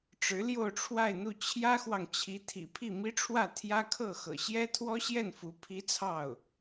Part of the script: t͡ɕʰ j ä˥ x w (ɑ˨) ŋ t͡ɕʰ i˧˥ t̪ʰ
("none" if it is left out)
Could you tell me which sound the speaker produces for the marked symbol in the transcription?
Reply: ɑ˨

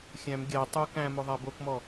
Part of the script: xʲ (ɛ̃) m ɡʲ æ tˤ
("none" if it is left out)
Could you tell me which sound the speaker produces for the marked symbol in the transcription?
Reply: æ̃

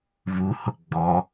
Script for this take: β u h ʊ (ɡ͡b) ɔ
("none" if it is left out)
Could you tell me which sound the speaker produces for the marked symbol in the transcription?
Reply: ɡ͡b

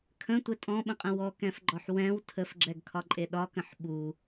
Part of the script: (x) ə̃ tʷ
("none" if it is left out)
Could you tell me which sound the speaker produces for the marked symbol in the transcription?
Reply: kʰ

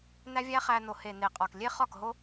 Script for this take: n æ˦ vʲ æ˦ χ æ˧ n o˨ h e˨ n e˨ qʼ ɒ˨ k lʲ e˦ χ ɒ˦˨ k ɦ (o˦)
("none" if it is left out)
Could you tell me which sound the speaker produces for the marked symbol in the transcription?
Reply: o˦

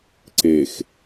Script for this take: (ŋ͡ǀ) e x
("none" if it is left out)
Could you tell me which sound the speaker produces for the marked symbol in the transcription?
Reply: ǀ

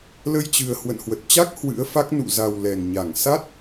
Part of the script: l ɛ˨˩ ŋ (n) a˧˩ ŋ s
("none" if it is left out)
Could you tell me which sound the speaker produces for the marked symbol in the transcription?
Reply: ɲ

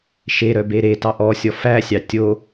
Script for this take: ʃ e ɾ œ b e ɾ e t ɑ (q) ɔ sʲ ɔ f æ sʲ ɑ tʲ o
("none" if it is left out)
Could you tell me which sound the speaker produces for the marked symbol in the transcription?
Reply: ʔ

